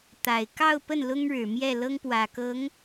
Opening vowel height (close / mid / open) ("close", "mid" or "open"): open